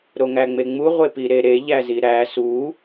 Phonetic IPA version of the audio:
ɾ o ŋ æ ŋ͡m e ŋ͡m u ʁʷ e p i ɾ e ɾ e ʎ æ z i ɾ æ s u

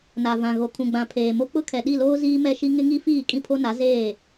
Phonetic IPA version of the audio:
n a˨ v ã˨ ɣ o˨ kʰ ũ˨ ɡ͡b ã˨ pʰ eː˨ m o˦ k͡p ʊ˦ kʰ ɛ˨ ɗ i˦˨ l oː˦ z iː˦ m ɛ˦ ʃ i˦ ŋ ɪ˦ ŋ i˦ f iː˦˨ kʼ ĩ˦ pʰ o˦ n a˨˦ z eː˦˨

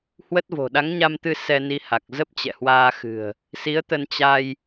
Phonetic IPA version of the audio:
h w ə˦˥ t̚ v o̤˨˩ ɗ a˨˦ ŋ ɲ a˧ m t̪ ɨ˧ s ɛ˧ n i˧ h a˨˩ k̚ z ə˦˥ p̚ t͡ɕ ɛ̰˧˨ h w aː˧ x ɨ̤˨˩ ə̯ | s i˨˦ ə̯ t̪ ə˧ n t͡ɕ a˧ j

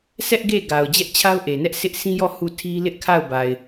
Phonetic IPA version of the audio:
s ɛ˦ ʔ ɡ e˦˨ ɡ a˨ ʊ̯ d͡ʑ ɛ˦ ʔ t͡ɕʰ a˦ ʊ̯ ʔ e˨ n ɛ˦ ʔ sʰ ɪ˦ ʔ sʰ ĩ˦ j ɔ˦˨ h u˦˨ tʰ i˦ l ɪ˦ ʔ kʰ a˦˨ ʊ̯ b a˨ ɪ̯

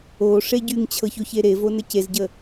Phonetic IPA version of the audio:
o ʂ e ɟ y ŋ t͡ɕʰ ɤ ç o ç e ɾ e v o n ə c e z ɟ ə

